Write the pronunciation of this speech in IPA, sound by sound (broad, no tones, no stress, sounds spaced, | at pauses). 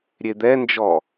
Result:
ɾʲ e d̪ ɛ n d͡ʒ ɔ